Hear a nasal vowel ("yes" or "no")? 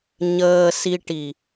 no